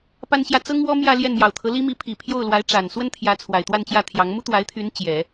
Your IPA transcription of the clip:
p a˥ n ɕ j ä˥˩ t͡s ɤ˥ ŋ w ɔ˥ m j ä˥˧ l j ɛ˥˩ n m j ɑ˨˩ ʊ̯ t̪ʰ ɤ˧˥ l i˥ m i˧˥ pʰ i˨˩ pʰ j o˥˩ ʊ̯ l w a˧˥ ɪ̯ ʈ͡ʂ a˨˩ n s w ə˥ n t̪ʰ j ä˧˥ t͡sʰ w a˨˩ ɪ̯ t̪ w a˥˧ n t͡ɕ j ä˥˩ t̪ʰ j ɑ˧˥ ŋ m u˥ t̪ w a˧˥ ɪ̯ t̪ʰ y˧˥ n t͡ɕ j ɛ˨˩˦

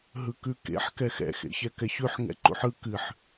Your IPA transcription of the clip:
ɦ ɯ k ʉ k ḛ ħ k ɛ x ɛ̰ x ḛ ç ɛ k ɛ ç ʉ ħ ŋ ɛ̰ ǃ ṵ ħ ɯ k ɨ ħ

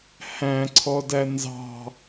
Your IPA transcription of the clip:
h æ̃ ǀʰ ɔ d æ n z ɑ̤

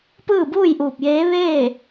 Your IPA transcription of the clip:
p ɯː˥˨ b uː˥˨ j ʔ uː˧˩ p̚ j eː˧˥ ʋ eː˥˨

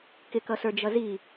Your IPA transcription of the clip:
k ɪ k ʌ s ə˞ d͡ʒ ʌ z i

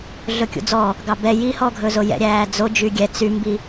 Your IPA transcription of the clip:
ɮ ɵ kʲ ṵ d͡z ɔ | ɡ ɑ b ɛ j i h ɔ ɡʱ ɵ z o j ɛ̰ ɾʲ æː d͡z o d͡ʒ y ɡʲ ɛ t͡s y m b i

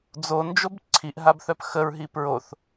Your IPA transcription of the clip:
d͡z o n d͡ʒ o b ǀʰ i ʔ ɦ a b θ œ p x ə ɹ ɦ i p ɹ o θ

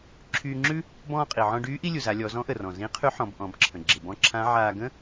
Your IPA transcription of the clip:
ǁʰ yː˧ ŋ͡ǁ ʉ˥ | b ɔ̃ː˧ qʼ i˩ ʕ ɔ̃˧ ɖ yː˧˥ ʔ i˥ lʲ u˩ z a˩˧ lʲ ɔ˩˧ z ɔ̃˧˥ ʔ ə˩ r ɔ̃˩ z ĩ˧˥ qʰ y˧˥ ħ ɔ̃˩˧ b ʔ ɔ̃˩˧ b ǁʰ ə̃˩ ɡ͡ǁ ɪ˩ b ɔ̃˧˥ ǁʰ ã˧˥ ʕ aː˧ ɡ ə̃˥

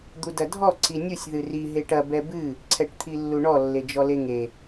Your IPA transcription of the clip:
d̪ u d ɐ dʱ ɔ ǀ i nʲ u sʲ ð ɨ r i ɦ e ʈ ɐ b ɛ b ɨ | ǀʰ ɛ ʈ t̪ʰ i lː u ɳ ɔ lː e d͡ʒ ɔ l e ŋ e

